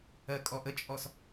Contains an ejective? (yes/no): yes